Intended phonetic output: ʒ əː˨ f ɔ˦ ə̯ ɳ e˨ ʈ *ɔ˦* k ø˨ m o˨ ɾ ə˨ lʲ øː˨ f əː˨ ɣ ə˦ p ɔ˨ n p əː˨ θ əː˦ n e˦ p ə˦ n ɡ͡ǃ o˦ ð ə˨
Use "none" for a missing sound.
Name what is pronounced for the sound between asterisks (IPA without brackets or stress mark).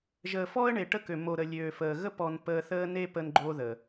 ə˦